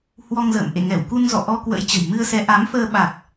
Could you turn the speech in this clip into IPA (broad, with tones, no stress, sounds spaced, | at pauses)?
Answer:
h w ɔ˧ ŋ z ə̰ː˧˨ m ʔ ḛ˧˨ ŋ ɛ˧˩ w k u˧ n z ɔ̰˧˨ ʔ ɔ˧ k w ə̰˧˥ j t͡ɕ ə̤˨˩ j m ɨ˧ ə̯ s ɛ˨˦ ʔ a˨˦ m f əː˧ ɓ a˨˩ k̚